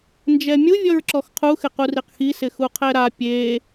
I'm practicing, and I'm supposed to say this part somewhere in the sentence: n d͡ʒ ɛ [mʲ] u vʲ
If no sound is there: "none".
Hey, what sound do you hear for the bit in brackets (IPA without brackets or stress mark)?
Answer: mʲ